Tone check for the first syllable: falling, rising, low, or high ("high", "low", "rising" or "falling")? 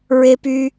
high